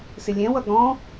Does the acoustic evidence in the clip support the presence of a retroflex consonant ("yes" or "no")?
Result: no